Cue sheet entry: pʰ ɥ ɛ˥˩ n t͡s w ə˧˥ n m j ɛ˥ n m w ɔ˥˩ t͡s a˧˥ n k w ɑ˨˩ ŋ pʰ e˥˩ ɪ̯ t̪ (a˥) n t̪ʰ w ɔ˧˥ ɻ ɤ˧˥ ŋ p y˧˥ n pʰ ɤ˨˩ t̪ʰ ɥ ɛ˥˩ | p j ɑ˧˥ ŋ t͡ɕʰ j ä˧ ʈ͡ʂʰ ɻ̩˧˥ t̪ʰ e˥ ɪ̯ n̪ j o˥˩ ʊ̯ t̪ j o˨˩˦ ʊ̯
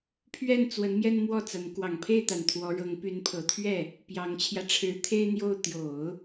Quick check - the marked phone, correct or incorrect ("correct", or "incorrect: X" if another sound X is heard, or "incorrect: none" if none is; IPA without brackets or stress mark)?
incorrect: a˨˩